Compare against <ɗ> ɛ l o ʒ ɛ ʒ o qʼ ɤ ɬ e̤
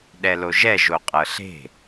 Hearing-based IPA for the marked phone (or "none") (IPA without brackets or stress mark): ɗ